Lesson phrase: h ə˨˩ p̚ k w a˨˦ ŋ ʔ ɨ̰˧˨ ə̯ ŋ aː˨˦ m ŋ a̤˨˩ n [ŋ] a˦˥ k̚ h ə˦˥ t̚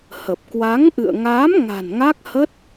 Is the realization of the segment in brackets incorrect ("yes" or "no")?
no